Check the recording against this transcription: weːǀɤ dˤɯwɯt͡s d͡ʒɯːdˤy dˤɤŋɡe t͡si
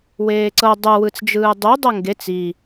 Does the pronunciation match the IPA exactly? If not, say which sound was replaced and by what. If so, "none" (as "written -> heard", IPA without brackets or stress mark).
y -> u